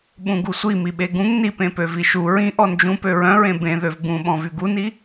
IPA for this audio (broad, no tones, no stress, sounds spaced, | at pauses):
ɓ ũ ɡ u sʷ i m i ɓ e ɡ ũ ŋ n i p ẽ p ø v i ʃ u ɹ ĩ ʔ ɔ n d͡ʒ ũ p ø ɹ œ̃ ɹ ẽ b ẽ ð ø v b ũ ɓ ɔ̃ v y ɡ u n i